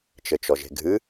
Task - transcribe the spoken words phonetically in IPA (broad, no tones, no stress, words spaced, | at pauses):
t͡ʃɘt͡ʃɔʒe̤ɡʱɨ